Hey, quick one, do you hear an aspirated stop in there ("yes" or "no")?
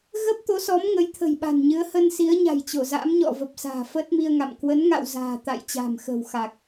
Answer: yes